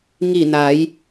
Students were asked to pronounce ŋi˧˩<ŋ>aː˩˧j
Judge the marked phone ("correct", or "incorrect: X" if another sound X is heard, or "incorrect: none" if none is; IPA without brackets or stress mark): incorrect: n